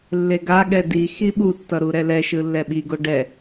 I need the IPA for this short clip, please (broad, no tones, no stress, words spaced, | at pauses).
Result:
lːeɡa ɠɛdi xiɓu tːʌɾuɾɛlɛ ʃɯlːɛɓi ɡoɖɛ